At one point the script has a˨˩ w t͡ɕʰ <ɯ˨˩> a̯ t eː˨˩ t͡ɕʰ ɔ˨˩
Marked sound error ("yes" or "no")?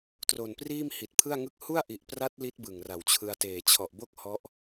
yes